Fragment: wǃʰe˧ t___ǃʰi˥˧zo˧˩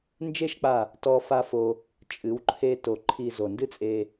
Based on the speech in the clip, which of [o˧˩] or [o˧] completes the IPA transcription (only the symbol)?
o˧˩